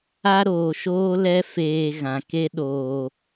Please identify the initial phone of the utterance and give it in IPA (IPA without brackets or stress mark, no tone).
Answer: a